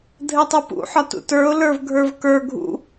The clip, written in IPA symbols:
dʱɘtˤupṵħɒ tṵtə˞ʊ̯ lə˞vɡʱə˞vkə˞ ɡʱṵ

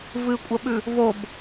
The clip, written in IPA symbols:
vɨkʷʼɐɓʉ | vob

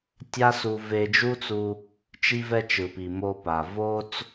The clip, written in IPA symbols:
tʲa˥su˧ ve˧d͡ʒu˥t͡su˧ | t͡ʃi˥vɛ˥t͡ʃɯ˩pi˩ mo˧pa˩ vo˥t͡s

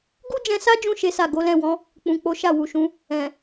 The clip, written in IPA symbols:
ɡu˦d͡ʒɛ̃˧sa˦d͡ʒũ˧ ʃe˦sa˦˨ ɡo˨˦lɛ̃˦˨wɔ̃˨˦ | k͡pũ˨k͡po˨˦ ʃa˦˨wu˨ʃũ˨˦ | ɛ̃˨

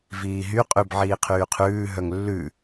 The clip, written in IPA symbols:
viːɦy qʼʉb ʕiːqʰyːqʰʉː ɦœŋlːʉ

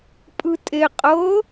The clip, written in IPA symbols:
pʼɯtʼe qʼɤ

